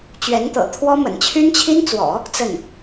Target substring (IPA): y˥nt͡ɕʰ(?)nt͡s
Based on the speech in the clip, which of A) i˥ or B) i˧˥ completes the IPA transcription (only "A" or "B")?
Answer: A